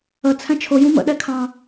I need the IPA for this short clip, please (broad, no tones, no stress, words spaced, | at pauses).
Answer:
ə t͡sʰɛ̃t͡ʃʰʊ jũmə̰ ɗɛkʰɑ̃